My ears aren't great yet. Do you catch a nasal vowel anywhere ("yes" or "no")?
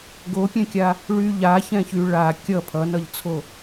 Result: yes